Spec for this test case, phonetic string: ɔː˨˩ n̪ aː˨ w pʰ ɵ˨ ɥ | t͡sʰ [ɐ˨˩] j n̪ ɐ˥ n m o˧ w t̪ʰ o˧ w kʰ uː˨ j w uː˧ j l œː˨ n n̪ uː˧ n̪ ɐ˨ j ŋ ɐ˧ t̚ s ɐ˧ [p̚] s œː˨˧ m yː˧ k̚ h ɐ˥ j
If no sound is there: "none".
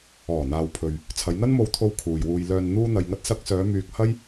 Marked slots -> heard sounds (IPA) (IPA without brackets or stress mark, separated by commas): ɐ˨˧, k̚